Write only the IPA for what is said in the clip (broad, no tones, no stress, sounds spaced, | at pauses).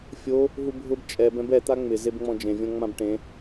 fʲ o | ɦ u bʱ ʊ b t͡ʃʼ ɛ b ɛ̃ b ɛ t̪ a ŋ͡m ɪ z e b ŋ͡m ɔ̃ d͡ʒ ẽ vʲ ɔ̃ ŋ͡m ã b ʈ ẽ